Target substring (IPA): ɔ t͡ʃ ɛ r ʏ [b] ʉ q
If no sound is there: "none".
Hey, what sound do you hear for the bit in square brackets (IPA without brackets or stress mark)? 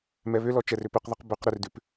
p